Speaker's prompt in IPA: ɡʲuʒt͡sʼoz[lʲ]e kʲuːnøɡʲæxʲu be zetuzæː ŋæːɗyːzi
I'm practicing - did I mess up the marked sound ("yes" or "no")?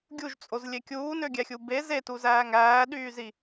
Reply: no